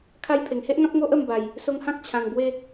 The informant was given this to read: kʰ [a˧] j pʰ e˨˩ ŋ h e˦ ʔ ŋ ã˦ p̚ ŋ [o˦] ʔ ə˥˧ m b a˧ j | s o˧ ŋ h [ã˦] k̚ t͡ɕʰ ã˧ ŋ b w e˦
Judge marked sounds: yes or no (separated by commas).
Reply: yes, yes, yes